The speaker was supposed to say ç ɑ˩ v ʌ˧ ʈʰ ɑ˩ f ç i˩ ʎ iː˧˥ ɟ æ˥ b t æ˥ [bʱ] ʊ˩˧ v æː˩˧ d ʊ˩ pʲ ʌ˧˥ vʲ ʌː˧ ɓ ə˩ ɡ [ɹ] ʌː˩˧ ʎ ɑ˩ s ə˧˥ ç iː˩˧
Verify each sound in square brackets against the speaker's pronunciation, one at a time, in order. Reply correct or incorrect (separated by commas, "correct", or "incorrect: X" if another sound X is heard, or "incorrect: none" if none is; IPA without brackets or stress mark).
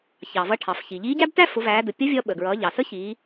incorrect: f, correct